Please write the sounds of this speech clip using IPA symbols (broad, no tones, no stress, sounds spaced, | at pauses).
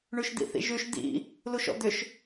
ɳ ʉ ʃ d̪ ḭ θ ḭ ʒ ʉ ʃ d̪ ḭ | l u ʃ ɔ̰ d̪ ʏ ʃ